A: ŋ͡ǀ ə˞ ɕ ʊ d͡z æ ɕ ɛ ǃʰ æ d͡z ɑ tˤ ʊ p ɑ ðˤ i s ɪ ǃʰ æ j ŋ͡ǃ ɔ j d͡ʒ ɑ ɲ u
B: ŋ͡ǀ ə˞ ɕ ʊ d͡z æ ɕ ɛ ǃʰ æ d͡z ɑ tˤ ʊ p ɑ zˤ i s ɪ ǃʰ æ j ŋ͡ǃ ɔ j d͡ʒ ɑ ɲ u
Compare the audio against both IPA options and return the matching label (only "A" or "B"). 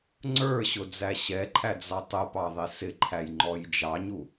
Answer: A